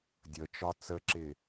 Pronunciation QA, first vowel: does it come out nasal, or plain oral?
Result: oral